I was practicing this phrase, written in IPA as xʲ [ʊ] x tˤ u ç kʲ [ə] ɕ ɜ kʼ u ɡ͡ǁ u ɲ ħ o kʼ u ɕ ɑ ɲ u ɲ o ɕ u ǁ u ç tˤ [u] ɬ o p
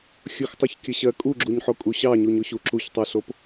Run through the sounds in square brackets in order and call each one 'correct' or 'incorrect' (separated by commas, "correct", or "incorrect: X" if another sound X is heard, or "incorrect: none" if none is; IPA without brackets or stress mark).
correct, correct, correct